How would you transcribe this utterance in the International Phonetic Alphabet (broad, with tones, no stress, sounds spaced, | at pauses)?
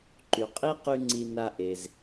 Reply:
ǃ y˨ qʼ i˦ q y˦ ŋ͡ǀ i˧ n a˧ ʔ e˨ z